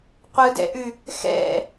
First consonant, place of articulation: uvular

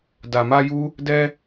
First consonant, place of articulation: alveolar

